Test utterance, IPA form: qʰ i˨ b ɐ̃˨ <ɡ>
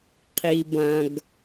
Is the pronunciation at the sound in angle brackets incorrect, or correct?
correct